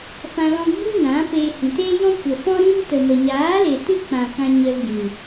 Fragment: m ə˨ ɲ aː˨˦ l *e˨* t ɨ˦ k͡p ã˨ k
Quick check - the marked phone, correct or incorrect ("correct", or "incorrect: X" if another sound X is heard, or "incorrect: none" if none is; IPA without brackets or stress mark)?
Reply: correct